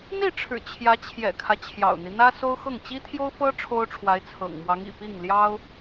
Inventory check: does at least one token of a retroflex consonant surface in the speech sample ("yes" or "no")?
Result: yes